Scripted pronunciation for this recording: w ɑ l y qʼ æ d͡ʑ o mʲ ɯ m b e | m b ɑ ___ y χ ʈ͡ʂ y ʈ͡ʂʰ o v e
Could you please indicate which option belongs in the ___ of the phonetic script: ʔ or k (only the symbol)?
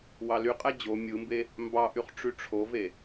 ʔ